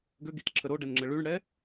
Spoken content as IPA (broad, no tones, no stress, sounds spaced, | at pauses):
ɡ ø ɡ i t ǁʰ ə ɾ o ɖ ɛ n ŋ͡ǁ ə ɭ y ɳ ɽ ɛ